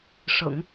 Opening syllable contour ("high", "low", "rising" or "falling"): low